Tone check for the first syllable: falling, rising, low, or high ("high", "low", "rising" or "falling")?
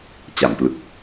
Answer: low